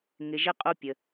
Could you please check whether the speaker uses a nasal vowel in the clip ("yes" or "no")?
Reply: no